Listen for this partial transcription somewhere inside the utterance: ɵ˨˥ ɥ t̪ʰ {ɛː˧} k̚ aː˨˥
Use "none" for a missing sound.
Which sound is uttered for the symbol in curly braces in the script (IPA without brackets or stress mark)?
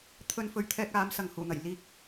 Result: ɛː˧